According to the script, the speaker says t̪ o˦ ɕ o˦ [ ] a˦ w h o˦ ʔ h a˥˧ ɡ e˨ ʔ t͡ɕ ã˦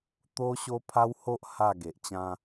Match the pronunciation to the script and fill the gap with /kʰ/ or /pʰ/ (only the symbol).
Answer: pʰ